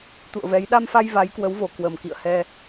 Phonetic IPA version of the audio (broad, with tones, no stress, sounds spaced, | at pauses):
t̪ ṵ˧˨ ə̯ v ɛ˨˦ j ɗ a˧ m f a˧ j v a˨˦ j k w ə˨˦ w v o˨˩ k w ə˨˩ m k ḭ˧˨ ə̯ h ɛ˧